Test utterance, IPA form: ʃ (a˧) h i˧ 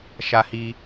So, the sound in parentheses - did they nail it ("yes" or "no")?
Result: yes